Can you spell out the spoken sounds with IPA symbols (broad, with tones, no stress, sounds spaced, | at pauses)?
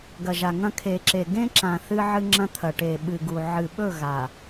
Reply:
ɡ ɐ˨ ʒ a˨ ŋ ɐ̃˦ kʰ e˨ ǁ e˨ ɡ ẽ˦ ǁ ã˨ θ ɨ˦ ʕ ɨ˦ ŋ͡ǁ ɐ̃˦ t̪ʰ ɐ˨ ʈ e˨ ɓ ɨ˨ ɡ u˨ ʕ ɨ˨ ɓ ɵ˦˨ ɣ a˨